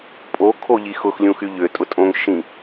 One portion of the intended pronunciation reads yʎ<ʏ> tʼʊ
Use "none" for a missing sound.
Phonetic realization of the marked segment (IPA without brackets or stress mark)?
ʏ